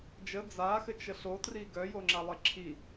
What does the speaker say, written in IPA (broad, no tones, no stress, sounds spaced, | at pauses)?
d͡ʒ ə d͡z a x ɘ t͡ʃ ə ɬ o t r i ɡ œ j o ŋ͡ǁ a lˠ ɘ ǁʰ i